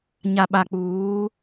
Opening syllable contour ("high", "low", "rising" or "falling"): low